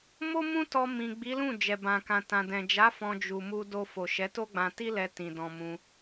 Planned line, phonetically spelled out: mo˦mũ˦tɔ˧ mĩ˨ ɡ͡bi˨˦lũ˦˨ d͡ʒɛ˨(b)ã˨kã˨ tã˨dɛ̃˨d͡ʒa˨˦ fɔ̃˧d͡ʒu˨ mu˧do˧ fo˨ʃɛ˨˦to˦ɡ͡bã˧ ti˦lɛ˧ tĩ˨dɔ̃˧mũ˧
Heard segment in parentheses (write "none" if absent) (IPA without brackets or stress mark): b